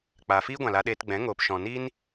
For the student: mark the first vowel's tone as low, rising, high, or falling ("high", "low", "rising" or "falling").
low